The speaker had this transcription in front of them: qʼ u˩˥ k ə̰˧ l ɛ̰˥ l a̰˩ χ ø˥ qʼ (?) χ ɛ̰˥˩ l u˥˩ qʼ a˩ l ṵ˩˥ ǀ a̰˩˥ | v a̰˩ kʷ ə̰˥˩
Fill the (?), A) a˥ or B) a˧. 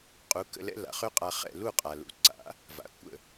B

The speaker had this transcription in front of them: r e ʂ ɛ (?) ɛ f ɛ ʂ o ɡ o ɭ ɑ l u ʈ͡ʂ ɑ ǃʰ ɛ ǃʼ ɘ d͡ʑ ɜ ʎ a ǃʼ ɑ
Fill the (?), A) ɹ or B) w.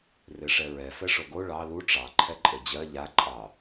A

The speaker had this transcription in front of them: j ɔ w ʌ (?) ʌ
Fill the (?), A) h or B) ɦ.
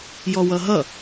B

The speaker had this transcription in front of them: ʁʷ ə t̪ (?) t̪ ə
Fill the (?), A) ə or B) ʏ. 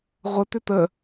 B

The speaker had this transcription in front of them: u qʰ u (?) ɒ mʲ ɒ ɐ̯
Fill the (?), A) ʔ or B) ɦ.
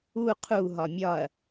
B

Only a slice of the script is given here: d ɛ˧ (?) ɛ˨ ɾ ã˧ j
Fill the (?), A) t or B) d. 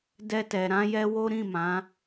A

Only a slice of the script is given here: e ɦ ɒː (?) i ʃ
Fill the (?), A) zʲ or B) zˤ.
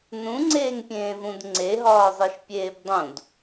B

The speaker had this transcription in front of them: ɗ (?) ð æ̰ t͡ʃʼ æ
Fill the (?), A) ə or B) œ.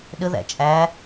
A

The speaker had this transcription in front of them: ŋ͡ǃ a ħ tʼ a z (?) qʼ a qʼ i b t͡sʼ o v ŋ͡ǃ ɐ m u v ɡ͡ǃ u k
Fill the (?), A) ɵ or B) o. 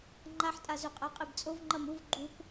A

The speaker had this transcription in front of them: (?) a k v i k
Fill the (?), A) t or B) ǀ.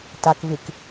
A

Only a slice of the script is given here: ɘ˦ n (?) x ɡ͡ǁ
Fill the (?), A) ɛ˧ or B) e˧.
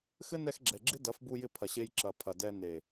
A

